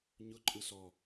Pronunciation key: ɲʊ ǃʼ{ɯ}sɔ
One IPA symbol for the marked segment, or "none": ɯ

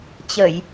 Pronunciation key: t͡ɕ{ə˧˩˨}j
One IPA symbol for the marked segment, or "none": ə˧˩˨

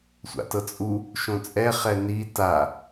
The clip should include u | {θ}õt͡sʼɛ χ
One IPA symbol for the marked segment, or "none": ʃ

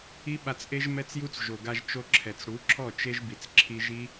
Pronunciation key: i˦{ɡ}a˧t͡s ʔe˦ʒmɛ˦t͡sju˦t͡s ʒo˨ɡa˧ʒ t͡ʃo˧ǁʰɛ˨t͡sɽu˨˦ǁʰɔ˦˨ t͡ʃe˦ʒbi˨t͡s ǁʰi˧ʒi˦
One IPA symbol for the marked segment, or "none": ɓ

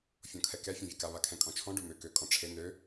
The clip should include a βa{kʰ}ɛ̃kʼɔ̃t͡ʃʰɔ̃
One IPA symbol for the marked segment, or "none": kʰ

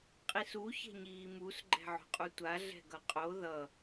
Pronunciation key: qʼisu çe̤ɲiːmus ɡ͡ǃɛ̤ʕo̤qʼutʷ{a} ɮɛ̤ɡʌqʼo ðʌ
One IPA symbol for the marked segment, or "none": a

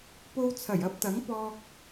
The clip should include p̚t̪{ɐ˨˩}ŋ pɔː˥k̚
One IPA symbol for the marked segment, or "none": ɐ˨˥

